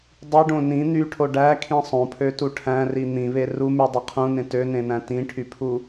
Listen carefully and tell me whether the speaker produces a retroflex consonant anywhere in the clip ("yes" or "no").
yes